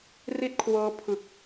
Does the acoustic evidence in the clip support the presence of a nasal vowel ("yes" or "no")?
no